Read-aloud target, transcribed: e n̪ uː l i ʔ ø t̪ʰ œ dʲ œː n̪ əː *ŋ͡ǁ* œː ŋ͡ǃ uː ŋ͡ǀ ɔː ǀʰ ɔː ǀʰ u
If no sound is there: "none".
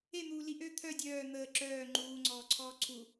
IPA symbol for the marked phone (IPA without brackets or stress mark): ǁ